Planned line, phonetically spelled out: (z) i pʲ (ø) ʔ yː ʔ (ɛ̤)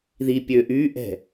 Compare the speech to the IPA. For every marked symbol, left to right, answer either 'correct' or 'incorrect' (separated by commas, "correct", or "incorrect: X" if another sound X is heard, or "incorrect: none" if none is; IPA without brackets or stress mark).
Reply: incorrect: ð, correct, correct